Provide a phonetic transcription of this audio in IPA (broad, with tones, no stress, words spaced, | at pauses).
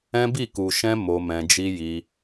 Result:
ɛ̃˦bi˦˨ ku˨ʃɛ̃˧ mo˧mɛ̃˧d͡ʒi˦ji˧